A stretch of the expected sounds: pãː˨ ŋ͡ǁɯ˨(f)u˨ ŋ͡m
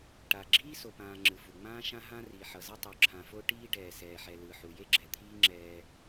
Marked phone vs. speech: correct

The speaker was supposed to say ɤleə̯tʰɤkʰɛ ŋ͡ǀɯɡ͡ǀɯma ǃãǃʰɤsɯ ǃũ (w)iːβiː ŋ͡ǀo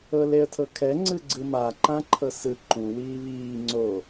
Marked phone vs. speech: correct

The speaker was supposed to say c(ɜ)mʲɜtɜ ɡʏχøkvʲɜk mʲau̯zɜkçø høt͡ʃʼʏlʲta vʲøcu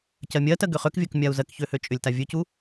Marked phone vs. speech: correct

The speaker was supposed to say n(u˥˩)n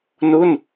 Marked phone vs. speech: correct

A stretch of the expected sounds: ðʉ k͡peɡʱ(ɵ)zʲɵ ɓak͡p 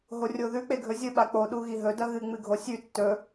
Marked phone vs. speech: correct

